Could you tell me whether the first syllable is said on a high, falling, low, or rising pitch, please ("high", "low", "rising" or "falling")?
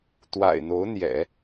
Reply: low